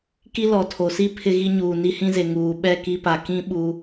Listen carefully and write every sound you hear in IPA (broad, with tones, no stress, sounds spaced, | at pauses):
k i˦ l ɔ˨ tʰ o˨ s i˦ pʰ ɪ˦ ɣ i˦ ɲ uː˨ n i˦ h ĩ˦ z e˨ ŋ uː˨ ɓ ɛ˦˨ k i˦ p a˨ k ĩ˦ ɓ u˦